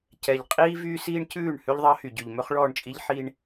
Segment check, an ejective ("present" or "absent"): present